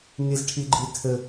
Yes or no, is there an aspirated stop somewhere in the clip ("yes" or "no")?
yes